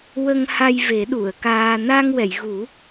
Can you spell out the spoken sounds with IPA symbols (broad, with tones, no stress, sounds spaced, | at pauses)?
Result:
w ə˧ ŋ h a˧ j v e˨˩˦ ɗ u˨˩˨ ə̯ k aː˧ n a˧ ŋ w ɛ˨˩˨ j ɣ u˨˩˦